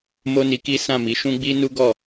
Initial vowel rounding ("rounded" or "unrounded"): rounded